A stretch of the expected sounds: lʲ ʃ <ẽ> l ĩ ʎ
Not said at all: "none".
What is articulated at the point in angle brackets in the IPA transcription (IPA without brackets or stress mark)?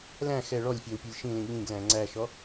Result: ĩ